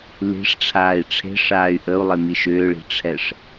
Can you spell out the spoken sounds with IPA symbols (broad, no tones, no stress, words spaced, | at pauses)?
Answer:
li̤ʂʈ͡ʂʰaːi̯ ʈ͡ʂʰe̤ʂaːy̯ ʔəu̯lˠemi ʃʏːɭi̤ʈ͡ʂʰɛʂ